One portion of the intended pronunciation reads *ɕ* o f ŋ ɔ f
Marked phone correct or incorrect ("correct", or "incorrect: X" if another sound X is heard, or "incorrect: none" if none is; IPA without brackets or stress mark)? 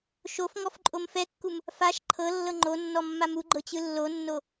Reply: incorrect: ʃ